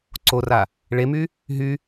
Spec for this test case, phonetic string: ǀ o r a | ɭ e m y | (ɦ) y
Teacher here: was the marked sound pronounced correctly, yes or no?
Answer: yes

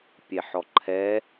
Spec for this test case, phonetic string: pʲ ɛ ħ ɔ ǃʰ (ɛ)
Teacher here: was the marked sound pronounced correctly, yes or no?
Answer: yes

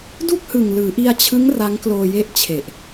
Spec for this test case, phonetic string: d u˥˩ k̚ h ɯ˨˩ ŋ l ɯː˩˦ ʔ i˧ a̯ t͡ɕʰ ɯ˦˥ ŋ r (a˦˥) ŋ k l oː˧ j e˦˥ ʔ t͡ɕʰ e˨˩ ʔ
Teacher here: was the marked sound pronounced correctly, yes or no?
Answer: yes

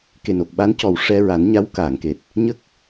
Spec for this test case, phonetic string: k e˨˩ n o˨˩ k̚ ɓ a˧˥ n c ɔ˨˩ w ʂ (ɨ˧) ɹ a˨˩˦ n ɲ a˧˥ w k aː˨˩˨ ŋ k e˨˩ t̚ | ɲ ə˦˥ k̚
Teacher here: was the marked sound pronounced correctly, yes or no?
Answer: no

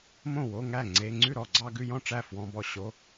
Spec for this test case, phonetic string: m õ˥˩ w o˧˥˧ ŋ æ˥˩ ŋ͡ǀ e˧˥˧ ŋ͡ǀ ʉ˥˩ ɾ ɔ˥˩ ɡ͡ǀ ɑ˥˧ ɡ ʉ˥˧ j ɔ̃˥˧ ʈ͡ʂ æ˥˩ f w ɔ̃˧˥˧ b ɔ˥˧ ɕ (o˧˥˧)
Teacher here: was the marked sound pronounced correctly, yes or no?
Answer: yes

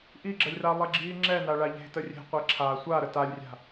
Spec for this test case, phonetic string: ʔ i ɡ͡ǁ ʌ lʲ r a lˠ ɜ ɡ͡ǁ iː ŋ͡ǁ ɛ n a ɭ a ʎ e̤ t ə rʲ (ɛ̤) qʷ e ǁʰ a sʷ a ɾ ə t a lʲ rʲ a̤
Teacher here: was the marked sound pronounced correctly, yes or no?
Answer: no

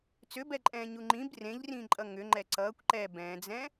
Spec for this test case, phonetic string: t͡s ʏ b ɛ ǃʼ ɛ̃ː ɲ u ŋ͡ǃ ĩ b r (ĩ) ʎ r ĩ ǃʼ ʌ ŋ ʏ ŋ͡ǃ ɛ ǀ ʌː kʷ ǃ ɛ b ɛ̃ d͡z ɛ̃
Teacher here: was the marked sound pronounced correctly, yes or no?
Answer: no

